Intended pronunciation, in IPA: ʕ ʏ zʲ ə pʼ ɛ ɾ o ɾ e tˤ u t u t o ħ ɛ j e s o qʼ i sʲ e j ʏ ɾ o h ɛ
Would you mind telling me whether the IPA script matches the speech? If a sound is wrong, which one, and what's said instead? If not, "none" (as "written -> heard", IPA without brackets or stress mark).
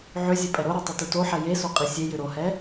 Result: none